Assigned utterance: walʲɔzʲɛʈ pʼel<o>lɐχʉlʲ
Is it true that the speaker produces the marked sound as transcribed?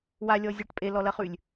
no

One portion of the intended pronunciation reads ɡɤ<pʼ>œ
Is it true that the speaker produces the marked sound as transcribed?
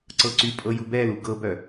no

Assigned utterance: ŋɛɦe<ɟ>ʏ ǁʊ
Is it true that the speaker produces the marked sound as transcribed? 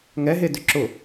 no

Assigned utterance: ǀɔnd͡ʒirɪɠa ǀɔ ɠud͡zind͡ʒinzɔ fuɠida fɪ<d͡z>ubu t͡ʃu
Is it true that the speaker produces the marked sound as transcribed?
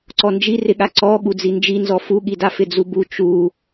yes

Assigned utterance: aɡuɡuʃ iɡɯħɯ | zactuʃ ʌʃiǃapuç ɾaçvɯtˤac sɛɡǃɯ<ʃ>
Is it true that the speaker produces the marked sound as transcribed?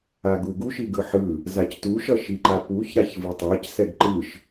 yes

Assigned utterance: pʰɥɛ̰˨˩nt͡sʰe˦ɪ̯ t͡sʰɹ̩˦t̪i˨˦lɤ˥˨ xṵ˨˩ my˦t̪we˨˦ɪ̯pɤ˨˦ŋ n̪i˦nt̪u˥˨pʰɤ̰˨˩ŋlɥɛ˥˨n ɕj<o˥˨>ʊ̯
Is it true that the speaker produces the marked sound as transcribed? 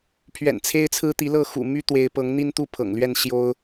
no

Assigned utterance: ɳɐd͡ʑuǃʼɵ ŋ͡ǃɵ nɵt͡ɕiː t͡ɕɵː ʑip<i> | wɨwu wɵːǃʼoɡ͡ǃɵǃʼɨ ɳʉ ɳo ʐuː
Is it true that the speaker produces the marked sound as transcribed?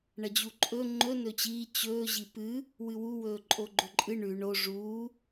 no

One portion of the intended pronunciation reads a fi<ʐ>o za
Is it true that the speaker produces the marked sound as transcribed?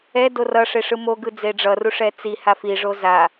yes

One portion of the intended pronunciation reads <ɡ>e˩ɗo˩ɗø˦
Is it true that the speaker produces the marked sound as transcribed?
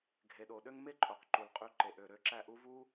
no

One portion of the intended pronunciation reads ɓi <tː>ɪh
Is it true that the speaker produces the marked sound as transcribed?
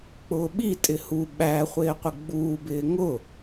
no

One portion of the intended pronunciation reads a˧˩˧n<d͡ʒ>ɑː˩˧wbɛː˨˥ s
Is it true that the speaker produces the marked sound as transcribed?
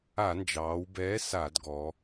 yes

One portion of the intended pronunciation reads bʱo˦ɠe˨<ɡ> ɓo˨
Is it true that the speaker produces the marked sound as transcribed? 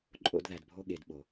no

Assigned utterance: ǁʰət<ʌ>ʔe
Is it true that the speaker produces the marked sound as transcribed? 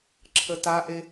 no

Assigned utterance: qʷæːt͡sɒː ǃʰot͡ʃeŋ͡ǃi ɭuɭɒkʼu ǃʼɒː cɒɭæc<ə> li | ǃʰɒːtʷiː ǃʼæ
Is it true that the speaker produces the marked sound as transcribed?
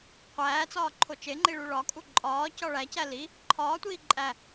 no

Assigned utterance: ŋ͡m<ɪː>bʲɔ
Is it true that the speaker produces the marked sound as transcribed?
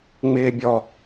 yes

